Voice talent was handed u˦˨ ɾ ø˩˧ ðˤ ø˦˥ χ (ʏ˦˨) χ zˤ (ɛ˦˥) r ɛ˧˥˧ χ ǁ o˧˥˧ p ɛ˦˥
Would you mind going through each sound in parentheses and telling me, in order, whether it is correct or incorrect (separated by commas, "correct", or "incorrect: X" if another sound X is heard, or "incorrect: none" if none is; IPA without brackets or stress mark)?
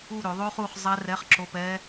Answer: incorrect: u˦˨, correct